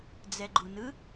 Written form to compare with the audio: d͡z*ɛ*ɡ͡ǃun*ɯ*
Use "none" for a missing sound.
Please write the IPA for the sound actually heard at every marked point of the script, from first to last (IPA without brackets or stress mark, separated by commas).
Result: ɛ, ɯ